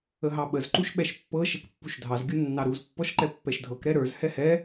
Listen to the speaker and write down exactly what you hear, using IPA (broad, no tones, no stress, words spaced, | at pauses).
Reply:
əɦɑɓəz ǃuʃɓɛʃpːɤ ʃɛkpːuʃdʱɑz ɡʲunːɑɾuz pːɔʃǃɛpːɛʃdʱɤk ɾɛɾə˞z hɛhɛ